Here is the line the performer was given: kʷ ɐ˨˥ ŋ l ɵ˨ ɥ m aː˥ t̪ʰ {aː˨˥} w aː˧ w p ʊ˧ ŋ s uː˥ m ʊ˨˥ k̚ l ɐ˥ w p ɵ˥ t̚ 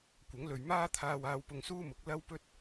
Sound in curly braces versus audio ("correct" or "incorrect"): incorrect